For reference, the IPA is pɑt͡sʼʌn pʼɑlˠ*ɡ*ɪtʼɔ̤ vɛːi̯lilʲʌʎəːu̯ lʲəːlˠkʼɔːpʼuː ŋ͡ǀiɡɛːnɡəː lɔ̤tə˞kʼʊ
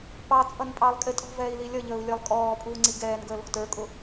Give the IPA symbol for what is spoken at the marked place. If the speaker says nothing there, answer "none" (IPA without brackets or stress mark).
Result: kʼ